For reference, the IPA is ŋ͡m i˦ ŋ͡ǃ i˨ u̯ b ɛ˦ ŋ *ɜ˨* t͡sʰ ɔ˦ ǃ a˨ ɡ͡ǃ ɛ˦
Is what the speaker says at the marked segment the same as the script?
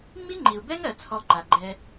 yes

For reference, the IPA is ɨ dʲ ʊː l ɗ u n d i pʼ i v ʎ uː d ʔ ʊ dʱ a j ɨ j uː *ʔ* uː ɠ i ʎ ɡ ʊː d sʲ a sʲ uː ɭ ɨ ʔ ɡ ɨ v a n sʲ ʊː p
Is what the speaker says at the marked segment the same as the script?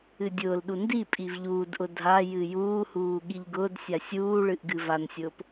no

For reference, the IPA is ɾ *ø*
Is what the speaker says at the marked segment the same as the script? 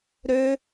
yes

